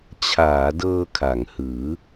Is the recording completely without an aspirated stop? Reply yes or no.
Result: no